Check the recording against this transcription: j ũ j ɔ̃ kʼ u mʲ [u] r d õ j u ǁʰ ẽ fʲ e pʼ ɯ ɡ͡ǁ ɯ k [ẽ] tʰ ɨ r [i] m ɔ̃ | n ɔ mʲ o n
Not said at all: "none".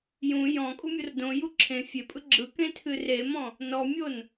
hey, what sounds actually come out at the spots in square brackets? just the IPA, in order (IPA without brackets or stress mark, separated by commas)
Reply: o, ẽ, e